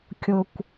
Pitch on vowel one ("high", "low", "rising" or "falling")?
low